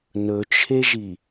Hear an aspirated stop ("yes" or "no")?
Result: yes